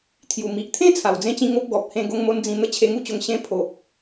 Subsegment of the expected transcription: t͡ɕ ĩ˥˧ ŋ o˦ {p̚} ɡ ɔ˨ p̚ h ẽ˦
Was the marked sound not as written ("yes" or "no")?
no